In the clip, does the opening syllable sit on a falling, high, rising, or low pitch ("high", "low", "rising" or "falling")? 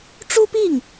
high